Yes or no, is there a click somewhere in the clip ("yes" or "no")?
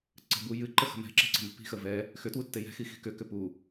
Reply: yes